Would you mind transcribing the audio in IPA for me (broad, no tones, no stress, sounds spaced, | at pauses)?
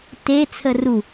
t e t͡sʰ ə r u